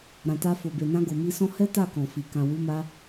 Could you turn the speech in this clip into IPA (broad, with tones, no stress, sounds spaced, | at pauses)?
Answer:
ɾ ã˨ t a˧ f o˨ b e˨ n ã˧ ɡ o˨ m i˧ s ɔ̃˦ h ɛ˦ t a˦˨ k ɔ̃˨ f i˨ k ã˨ w u˨˦ m a˧